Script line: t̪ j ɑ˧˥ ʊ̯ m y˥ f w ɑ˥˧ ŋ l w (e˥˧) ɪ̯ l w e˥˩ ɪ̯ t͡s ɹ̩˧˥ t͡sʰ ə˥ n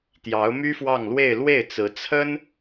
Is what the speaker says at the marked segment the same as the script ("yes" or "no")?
yes